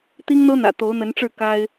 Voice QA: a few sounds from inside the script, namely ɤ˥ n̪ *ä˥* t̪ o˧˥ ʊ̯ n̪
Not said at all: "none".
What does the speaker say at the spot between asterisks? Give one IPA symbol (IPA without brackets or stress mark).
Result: ä̰˨˩